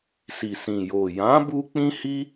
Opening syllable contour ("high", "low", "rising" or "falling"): low